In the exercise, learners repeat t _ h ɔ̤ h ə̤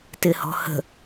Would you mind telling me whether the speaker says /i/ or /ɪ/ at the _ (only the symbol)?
ɪ